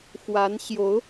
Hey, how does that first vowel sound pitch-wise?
rising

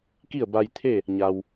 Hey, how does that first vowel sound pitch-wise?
falling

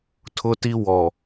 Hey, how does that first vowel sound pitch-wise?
high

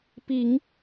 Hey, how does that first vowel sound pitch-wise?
low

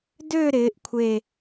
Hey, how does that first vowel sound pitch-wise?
falling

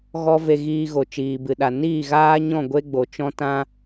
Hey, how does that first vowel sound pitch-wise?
high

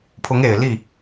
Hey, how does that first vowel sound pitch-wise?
rising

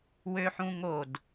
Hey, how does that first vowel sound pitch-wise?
high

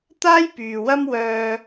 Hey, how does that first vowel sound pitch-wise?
high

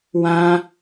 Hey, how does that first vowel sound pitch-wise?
high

